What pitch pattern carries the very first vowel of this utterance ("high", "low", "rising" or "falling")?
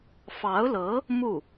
rising